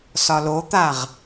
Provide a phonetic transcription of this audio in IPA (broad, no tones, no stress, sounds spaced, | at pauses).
s ɒ l o t̪ a ʁ